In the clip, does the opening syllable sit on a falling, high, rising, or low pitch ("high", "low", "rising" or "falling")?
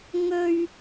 high